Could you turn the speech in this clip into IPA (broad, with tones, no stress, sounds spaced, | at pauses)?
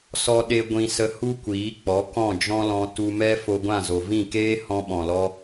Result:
s ɔ˦ ɗ e˦ ɡʷ ĩ˧ s ə˧ h u˦ kʷ iː˨˦ k͡p ɔ˨˦ k ɔ̃˦˨ d͡ʒ ɔ̃˦ l ɔ̃˧ t u˧ m ɛ˦ f o˧ ɡʷ ã˦˨ z o˨ v ĩ˦˨ k eː˦ h ɔ̃˧ ɓ ɔ̃˨ l ɔ˧